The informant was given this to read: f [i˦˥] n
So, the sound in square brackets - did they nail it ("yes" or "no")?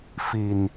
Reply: no